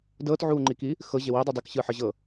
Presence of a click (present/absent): present